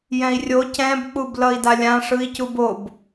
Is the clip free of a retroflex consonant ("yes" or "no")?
no